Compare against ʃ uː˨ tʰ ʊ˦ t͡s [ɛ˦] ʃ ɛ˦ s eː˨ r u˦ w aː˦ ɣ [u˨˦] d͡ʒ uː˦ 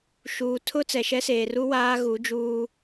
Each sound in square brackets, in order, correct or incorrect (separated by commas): incorrect, correct